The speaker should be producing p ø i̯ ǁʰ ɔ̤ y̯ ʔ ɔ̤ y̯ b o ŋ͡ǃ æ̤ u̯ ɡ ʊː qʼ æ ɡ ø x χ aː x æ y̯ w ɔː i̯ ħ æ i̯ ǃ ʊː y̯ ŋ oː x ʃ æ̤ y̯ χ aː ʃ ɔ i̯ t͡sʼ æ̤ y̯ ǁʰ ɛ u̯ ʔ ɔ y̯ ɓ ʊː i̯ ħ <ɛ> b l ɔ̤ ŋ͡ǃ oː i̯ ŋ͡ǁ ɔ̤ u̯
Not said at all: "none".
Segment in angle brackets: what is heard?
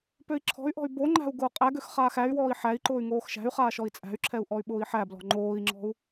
æ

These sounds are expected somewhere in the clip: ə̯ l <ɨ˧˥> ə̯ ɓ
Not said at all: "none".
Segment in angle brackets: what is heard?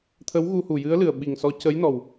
ɨ˨˩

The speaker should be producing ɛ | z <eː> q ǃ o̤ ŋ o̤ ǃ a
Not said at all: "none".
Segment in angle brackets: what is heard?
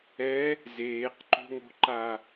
eː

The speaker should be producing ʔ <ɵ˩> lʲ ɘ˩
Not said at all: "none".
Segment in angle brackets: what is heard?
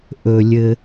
ɵ˩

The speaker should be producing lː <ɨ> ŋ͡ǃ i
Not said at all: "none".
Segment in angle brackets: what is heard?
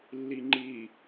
i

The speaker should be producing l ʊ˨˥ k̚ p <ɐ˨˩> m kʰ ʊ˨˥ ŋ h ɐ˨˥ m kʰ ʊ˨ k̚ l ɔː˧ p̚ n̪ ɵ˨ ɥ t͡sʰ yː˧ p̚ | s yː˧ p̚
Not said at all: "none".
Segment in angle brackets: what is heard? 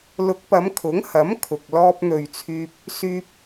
ɐ˨˧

